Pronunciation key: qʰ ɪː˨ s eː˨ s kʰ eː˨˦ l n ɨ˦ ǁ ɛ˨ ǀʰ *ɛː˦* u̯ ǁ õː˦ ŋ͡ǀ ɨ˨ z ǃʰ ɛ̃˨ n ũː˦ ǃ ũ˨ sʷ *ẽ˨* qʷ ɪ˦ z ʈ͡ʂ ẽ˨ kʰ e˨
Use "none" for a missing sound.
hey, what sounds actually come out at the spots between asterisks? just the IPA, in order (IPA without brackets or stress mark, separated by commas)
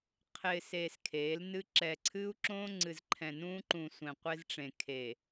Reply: ɨː˦, ẽ˨